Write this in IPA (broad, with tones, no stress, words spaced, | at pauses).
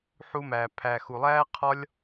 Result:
ħu˧mæ˨ pʰæ˨xu˨ lˠæː˦qʰɒ˦lʲ